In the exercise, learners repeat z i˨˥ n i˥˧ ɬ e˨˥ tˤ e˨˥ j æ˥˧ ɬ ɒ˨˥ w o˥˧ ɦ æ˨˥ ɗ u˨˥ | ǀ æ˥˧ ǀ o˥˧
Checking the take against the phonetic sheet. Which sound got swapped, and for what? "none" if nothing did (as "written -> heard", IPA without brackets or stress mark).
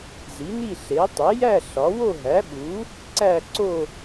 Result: ɗ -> ɓ